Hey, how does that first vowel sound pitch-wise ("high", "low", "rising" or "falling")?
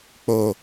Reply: low